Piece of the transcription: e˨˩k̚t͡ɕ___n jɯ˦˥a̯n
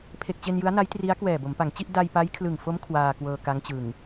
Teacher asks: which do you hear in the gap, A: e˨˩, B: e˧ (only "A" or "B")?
B